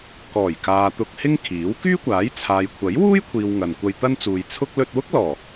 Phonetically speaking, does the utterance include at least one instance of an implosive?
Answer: no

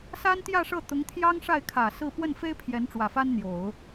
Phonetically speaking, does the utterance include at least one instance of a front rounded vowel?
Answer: no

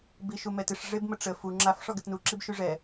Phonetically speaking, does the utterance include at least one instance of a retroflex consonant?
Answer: yes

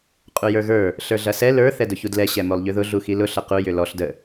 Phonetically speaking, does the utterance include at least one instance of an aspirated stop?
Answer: no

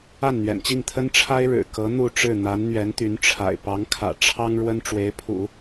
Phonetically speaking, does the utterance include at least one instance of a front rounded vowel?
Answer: yes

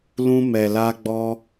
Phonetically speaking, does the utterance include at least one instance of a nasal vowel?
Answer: yes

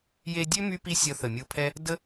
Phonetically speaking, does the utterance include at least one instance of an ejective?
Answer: no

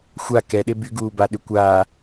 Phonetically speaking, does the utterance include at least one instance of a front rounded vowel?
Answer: yes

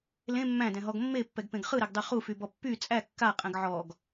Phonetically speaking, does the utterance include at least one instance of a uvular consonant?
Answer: yes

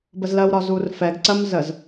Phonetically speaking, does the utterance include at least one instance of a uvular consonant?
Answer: no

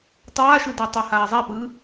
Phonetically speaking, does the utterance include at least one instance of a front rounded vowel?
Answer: no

